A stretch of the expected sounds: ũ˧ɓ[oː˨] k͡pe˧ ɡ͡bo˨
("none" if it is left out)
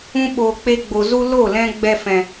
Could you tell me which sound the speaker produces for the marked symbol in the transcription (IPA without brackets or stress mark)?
oː˨